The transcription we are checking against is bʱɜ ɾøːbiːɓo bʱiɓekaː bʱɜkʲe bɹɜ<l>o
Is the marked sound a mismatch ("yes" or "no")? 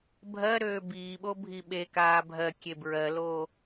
no